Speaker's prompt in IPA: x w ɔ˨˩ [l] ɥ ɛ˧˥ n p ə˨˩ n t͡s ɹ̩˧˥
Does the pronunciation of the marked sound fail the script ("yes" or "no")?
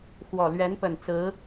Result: no